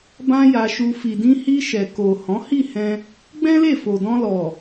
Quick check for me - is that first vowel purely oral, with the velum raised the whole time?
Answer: no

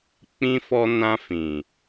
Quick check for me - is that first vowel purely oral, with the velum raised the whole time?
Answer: no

